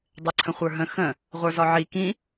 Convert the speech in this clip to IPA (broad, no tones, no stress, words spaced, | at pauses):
dˤɛǀʰə̃χʷə˞ɦə̃ xə̃ | ʁʷə˞zɒʕi kĩ